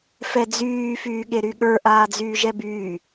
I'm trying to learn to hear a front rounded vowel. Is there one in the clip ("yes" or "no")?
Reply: yes